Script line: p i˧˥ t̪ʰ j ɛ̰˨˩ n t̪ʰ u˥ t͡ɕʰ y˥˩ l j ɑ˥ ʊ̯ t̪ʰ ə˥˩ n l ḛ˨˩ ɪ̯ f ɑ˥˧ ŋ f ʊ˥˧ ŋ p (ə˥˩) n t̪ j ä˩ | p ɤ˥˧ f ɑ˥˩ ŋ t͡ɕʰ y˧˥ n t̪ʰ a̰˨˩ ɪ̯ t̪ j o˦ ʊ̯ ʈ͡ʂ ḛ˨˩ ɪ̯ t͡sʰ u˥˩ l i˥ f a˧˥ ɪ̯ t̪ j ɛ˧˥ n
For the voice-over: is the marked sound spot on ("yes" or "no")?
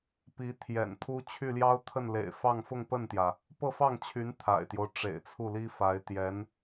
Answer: yes